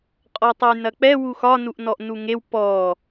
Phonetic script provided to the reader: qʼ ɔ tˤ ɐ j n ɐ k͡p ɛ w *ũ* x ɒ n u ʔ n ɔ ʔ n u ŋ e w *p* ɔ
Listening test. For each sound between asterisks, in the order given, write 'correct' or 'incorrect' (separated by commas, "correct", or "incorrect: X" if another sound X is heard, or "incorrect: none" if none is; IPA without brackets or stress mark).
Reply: incorrect: u, correct